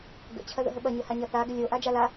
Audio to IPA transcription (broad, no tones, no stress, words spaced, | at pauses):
ɡə̰ t͡ɕʰɐðə̰ɦəɓɐ ɲəhaɲɐθa ɡəlʲo ʔad͡ʒala